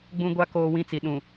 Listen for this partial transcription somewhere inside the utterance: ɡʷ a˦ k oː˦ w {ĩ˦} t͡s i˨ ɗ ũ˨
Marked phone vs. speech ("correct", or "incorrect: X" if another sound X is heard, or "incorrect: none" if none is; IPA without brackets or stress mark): correct